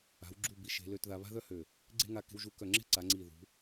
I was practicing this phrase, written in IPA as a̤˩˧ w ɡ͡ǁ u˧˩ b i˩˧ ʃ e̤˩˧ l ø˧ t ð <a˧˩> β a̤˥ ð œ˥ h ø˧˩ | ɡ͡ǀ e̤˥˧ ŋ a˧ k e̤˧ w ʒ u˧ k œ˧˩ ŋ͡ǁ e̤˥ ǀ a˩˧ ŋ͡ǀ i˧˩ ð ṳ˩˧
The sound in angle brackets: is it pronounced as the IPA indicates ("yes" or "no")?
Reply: no